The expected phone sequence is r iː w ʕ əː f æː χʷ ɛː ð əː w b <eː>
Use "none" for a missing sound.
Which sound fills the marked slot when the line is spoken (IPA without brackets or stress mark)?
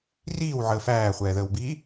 iː